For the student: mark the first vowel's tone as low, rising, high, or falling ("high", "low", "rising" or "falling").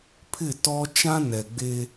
falling